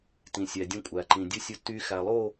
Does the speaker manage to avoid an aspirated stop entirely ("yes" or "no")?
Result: yes